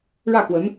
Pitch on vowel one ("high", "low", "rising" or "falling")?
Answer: falling